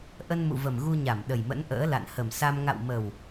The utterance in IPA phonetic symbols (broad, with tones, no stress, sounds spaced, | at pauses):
ʔ ə˧ n m ṵ˧˨ v ə˨˩ m ɣ u˧ ɲ a˧˩ m ɗ ə˨˩ j m ə̰˧˥ n ʔ ə̰ː˧˥ l a̰˧˨ n h ə˨˩ m s a˧ m ŋ a̰˧˨ w m ə˨˩ w